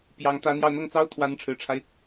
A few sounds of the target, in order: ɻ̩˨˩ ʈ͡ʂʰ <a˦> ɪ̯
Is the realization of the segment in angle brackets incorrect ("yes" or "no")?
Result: no